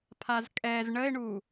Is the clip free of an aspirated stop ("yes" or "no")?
no